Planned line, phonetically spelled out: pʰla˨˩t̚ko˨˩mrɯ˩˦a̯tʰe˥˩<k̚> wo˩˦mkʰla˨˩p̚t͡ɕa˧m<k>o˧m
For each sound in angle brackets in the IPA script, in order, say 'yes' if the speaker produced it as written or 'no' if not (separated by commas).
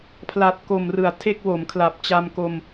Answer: yes, yes